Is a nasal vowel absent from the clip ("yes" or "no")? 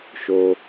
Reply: yes